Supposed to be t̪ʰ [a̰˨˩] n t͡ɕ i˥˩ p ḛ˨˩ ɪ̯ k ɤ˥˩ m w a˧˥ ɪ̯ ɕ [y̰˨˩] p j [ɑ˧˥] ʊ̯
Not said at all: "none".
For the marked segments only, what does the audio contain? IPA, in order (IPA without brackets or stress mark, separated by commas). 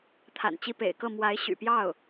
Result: a̰˨˩, y̰˨˩, ɑ˥˩